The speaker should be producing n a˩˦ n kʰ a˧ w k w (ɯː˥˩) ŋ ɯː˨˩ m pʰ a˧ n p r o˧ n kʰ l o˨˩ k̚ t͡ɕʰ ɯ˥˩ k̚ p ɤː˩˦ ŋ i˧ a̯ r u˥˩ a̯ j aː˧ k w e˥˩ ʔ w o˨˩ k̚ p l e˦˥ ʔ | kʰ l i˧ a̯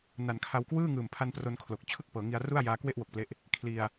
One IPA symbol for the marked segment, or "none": ɯː˥˩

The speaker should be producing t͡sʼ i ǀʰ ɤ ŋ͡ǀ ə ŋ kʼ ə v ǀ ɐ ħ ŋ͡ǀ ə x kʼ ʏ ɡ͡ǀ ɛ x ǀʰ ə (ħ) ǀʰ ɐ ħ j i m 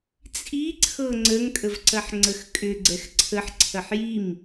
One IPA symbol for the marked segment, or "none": ħ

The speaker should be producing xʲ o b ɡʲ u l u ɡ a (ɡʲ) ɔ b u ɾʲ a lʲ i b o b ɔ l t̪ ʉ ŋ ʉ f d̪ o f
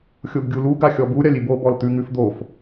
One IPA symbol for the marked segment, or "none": xʲ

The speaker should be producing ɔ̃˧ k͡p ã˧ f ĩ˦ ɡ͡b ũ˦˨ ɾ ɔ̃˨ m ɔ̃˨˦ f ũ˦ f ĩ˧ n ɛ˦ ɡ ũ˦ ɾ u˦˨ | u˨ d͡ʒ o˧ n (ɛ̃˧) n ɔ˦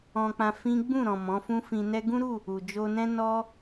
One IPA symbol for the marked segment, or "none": ɛ̃˦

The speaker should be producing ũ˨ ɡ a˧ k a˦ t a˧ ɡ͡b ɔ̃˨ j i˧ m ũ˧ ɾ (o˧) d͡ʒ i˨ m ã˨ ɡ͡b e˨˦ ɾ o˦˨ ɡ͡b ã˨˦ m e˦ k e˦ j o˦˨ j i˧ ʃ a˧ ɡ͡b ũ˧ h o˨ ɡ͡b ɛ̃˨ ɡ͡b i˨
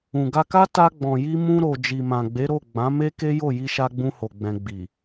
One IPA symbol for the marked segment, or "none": o˨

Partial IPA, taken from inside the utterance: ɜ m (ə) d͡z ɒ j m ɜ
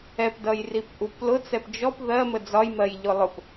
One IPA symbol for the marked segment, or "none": ə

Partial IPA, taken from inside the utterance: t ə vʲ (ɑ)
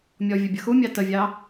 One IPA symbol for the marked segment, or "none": ɑ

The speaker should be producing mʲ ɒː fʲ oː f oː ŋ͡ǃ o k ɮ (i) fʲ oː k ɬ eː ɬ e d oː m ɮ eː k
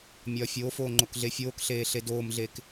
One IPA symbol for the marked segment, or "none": e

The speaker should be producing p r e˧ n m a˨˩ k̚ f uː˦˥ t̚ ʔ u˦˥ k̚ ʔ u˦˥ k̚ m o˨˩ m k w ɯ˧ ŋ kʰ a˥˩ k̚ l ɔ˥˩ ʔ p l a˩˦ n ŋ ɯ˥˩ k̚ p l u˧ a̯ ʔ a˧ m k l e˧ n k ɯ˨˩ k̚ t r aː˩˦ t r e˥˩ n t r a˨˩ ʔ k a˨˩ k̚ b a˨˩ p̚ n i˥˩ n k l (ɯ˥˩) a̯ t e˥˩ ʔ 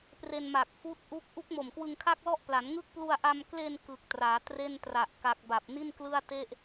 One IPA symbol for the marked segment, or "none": ɯ˥˩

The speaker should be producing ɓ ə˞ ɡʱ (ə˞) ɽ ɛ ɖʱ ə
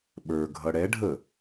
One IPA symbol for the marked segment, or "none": ʌ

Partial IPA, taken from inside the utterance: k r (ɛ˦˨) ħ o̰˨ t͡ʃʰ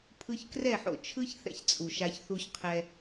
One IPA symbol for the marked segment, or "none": ɛ˦˨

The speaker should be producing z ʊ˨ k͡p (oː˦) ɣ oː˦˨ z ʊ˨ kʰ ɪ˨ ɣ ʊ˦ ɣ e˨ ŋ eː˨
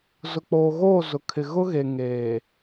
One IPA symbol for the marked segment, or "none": oː˨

